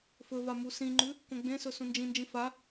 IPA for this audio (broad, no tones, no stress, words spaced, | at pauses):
fɵva musĩŋ͡ǃʉ | kõɡ͡bẽsɵ sũnd͡ʒĩnd͡ʒĩ fa